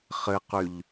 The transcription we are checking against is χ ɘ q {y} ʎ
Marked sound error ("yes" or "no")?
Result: no